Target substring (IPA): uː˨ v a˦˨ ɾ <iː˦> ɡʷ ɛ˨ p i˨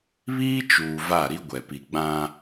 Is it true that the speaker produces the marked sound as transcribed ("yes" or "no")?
no